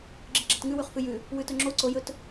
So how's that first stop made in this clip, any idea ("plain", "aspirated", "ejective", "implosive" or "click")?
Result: click